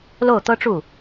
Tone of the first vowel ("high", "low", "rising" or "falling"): falling